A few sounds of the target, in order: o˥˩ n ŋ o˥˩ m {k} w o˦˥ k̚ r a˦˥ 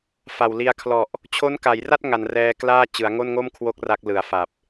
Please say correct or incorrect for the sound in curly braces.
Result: incorrect